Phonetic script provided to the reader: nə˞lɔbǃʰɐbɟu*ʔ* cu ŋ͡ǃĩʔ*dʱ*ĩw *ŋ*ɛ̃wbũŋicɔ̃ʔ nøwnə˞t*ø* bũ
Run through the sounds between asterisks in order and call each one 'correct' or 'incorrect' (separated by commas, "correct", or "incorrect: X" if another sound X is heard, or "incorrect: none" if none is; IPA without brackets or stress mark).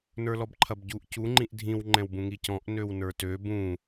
correct, correct, incorrect: ŋ͡ǃ, correct